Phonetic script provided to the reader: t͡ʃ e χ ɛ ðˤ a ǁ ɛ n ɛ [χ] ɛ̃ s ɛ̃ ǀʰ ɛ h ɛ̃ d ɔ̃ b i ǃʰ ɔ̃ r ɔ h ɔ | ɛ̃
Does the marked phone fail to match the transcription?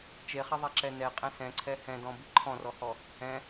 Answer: yes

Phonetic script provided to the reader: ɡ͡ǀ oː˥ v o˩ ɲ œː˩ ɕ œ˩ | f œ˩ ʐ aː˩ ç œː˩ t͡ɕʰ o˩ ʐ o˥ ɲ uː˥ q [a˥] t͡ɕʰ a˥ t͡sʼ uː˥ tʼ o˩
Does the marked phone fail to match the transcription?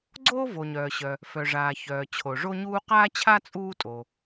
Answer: yes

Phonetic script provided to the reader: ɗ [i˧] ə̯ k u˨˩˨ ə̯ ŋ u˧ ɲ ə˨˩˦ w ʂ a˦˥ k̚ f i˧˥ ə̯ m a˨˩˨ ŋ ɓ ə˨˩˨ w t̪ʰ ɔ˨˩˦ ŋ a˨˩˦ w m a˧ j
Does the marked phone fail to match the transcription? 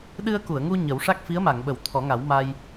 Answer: yes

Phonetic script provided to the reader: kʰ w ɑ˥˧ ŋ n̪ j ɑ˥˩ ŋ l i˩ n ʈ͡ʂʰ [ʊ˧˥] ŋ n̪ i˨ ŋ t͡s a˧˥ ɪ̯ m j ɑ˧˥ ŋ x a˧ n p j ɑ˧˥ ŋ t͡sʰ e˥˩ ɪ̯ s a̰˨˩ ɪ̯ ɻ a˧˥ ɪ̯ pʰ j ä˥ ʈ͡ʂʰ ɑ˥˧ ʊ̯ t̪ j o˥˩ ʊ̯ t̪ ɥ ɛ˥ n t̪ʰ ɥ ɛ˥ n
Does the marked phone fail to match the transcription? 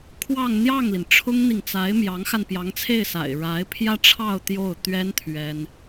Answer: yes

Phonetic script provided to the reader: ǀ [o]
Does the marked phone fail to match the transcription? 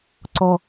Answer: yes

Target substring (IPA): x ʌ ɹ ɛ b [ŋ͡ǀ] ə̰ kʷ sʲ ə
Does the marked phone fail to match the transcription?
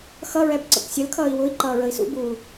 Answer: yes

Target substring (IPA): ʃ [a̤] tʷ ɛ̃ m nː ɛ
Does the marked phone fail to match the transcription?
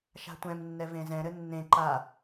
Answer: no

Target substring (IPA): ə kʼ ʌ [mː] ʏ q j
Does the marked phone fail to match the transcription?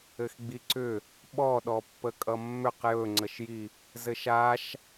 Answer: no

